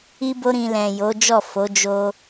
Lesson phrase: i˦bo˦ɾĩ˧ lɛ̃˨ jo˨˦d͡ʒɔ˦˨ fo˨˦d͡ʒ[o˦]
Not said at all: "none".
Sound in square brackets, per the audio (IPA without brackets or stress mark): o˧